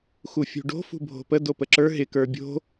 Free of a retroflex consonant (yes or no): no